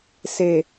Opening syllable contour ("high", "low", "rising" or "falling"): low